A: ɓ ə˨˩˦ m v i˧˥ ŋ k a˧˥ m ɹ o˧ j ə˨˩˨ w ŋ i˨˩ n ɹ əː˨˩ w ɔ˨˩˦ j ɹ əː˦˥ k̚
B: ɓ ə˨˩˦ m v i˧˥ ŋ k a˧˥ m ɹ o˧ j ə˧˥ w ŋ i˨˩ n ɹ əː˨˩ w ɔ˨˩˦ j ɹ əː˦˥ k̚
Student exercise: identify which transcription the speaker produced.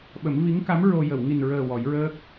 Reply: A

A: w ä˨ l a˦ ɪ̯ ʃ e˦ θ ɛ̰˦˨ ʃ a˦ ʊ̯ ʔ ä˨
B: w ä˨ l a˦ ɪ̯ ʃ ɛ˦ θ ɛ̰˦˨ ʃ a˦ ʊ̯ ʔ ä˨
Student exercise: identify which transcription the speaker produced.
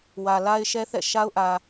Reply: B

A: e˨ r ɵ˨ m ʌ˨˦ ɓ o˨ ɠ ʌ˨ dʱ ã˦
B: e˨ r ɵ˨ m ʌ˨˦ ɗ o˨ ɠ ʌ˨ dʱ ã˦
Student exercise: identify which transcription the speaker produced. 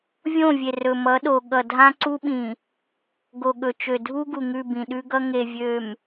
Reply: B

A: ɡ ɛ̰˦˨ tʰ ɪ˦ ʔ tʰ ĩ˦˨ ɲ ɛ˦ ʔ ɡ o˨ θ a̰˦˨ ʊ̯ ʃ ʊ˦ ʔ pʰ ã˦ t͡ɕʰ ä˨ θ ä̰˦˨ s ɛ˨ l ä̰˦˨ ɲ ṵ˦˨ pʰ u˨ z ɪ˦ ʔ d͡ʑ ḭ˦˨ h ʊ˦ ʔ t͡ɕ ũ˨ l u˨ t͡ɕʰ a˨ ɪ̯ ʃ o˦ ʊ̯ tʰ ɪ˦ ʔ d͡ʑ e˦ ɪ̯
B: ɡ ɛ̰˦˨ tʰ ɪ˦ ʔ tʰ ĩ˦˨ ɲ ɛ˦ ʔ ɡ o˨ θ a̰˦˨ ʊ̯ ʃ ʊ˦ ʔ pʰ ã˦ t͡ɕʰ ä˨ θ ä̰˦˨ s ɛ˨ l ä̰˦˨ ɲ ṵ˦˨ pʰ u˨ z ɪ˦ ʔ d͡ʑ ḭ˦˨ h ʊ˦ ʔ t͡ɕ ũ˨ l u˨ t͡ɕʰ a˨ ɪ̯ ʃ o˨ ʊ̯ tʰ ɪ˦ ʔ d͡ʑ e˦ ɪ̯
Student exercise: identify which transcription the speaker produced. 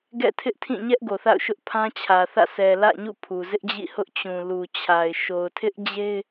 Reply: B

